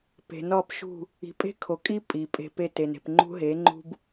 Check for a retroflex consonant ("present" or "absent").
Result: absent